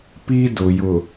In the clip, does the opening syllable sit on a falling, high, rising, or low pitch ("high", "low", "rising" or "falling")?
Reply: high